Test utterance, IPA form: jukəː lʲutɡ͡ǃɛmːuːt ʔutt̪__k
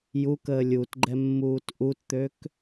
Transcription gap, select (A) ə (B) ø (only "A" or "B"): B